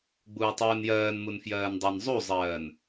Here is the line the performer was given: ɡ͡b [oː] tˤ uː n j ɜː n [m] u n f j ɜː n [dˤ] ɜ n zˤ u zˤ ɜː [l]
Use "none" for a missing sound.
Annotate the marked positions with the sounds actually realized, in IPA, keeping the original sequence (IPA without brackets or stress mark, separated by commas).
uː, m, dˤ, n